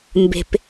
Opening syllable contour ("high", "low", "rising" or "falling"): low